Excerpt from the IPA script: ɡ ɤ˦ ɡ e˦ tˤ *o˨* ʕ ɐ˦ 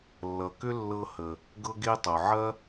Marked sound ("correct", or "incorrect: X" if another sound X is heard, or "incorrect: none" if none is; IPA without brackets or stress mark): correct